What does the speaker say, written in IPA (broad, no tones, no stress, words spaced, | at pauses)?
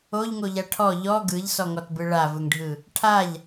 oʎŋoʎa ʈʰɔ ʎɔ ɡɯʎsɔŋɔtbɯ ɭavɯŋɖʱɯ | ʈʰaʎ